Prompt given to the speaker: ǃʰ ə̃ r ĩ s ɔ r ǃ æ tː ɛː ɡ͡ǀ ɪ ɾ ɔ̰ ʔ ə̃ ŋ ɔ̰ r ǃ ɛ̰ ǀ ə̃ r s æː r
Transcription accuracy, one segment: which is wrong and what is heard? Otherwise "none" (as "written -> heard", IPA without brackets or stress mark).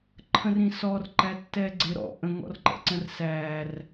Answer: none